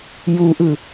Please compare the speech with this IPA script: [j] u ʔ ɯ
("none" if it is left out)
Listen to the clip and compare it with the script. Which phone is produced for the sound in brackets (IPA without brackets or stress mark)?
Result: j